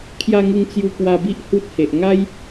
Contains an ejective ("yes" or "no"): no